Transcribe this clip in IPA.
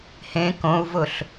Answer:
h ẽ k õ u̯ v ʊ ɬ

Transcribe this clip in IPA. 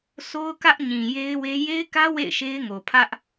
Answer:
s o˦ ʊ̯ k ä˦ ʔ ɲ ĩ˨ j e˦ ɪ̯ w e˦ j e˦ ɪ̯ k ä˦ w ḛ˦˨ ɪ̯ ʃ e˦ ɪ̯ ŋ o˨ pʰ ä˦ ʔ

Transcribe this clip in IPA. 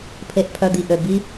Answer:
pʰ e˨ ʔ pʰ œ˨ d̪ i˨ ʔ ø˨ b i˧

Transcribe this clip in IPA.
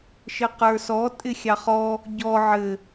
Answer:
ʃ ɘ q ə˞ s ɔ tʼ ɪ xʲ ɑ χ ɔ | ɟ ɔ ʕ ɘ

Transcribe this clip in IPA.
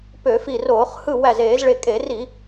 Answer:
p ø˧˩˧ f i˧˩ r oː˧˩˧ χ h ɯ˧˩ w æ˧˩ z eː˧˩˧ z ɭ e˧˩ kʼ e˧˩˧ r i˧˩˧

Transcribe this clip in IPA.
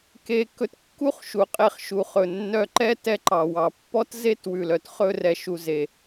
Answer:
k e˧ k ɵ˧ t kː u˦ χ ʃ u˨ qʼ e˧ χ ʃ u˨ χ ɵ˨ nː œ˧ ǃ ɛ˦ t ɛ˦ ǃ ɑ˨ w ɑ˨ pː ɔ˦ t z e˦ t w ʉ˨ l œ˨ t χ ɵ˧ r ɛ˨ ʃ u˨ z e˨

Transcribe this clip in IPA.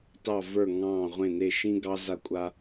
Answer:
t ɑ˧˩ v ə˞˧˩ ŋ ɑ̃ː˧˩ ʁʷ ẽ˧˩ n e˧˩ ʃ ĩ˦ ɡ ɑ˦ z a˦ kʷʼ a˦

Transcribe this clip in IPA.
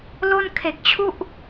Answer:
l o˥˩ n kʰ e˨˩ k̚ t͡ɕʰ u˥˩ ʔ

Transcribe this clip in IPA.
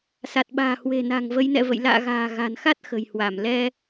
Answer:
s a˨˩ t̚ ɓ a̤ː˨˩ h w e̤˨˩ n a̤˨˩ ŋ v ə˨˦ j n ɛ̰˧˨ v ə̰˧˨ j l a̰ː˧˨ ɣ a̤ː˨˩ ɣ a̤˨˩ n x a˦˥ t̚ x ə̤˨˩ j h w a˧˩ m l ɛ˧

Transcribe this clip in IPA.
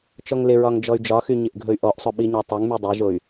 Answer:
t͡ʃ ɔ ŋ l ɪ ɹ ɒ ŋ d͡ʒ ɔ y̯ d͡ʒ ɒ x y ɲ ɪ ʔ ɡʱ ɵ y̯ ʔ ɔ ʔ sˤ ɵ ɓ i ɲ ɒ tˤ ɵ ŋ m y dˤ e ʒ o y̯

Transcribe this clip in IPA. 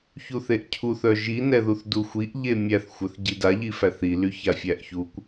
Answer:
ç u θ e ʔ cʰ u θ œ ʒ i n ɛ ð u θ d u xʷ i ʔ ʎ e mʲ æ θ xʷ œ θ ɟ i d a ʎ i f æ θ i l y ç a fʲ æ ʔ ç u kʷ

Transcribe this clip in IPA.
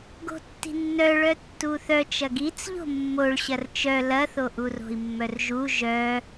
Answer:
ɡ o̤ tː i̤ nː œ ɭ œ tː u θ œ t͡ʃ ɐ ɡ i t͡s ʎ o̤ mː o ɭ ɕ ɐ r t͡ʃ œ l ɐ θ o ʔ u r o̤ i̯ mː œ r ʒ u ʒ œ

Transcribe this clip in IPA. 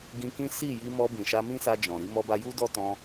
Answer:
ɡ ĩ˧ k ĩ˦ s i˦˨ j i˧ m ɔ˧ b ĩ˨ ʃ a˧ m ĩ˦ s a˧ d͡ʒ ɔ̃˨ ɾ i˨˦ m ɔ˧ b a˧ j u˦ d ɔ˦ t ɔ̃˧

